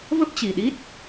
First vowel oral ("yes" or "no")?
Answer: yes